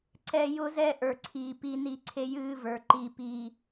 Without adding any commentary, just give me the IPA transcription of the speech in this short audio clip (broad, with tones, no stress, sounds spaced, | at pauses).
ǀ ɛ˨ j ʊ˦ z ɛ˦ ʔ ə˞˨ ǀʰ iː˨ p i˦ n i˦ ǀʰ e˦ j ɨː˦ v ə˞˨ ǃ i˦˨ p iː˦